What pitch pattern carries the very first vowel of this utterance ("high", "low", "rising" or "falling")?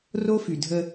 high